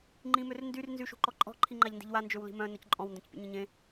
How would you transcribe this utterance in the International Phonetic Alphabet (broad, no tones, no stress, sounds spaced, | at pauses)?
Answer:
ŋ͡ǃ ĩ m ø r n d y r n z y ʃ ṳ ǃ ɔ ǃʼ ɔ̤ ǃʰ i ŋ͡ǃ a ʎ n d i̤ ʎ w a n d͡ʒ ø w l i̤ m œ̃ n œ c ǃʼ ɔ̃ w n d œ̃ c pʲ ṵ ɲ ẽ ɲ ẽ